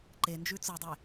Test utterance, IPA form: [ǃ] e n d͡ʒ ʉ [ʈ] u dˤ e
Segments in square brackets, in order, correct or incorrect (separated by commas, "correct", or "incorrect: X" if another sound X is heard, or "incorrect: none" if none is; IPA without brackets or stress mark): correct, incorrect: t͡s